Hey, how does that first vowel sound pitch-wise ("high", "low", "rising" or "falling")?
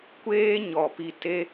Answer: high